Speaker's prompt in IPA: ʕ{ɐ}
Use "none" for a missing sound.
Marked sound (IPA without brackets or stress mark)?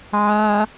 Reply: a